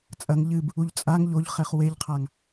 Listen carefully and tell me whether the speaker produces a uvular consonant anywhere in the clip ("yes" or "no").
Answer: yes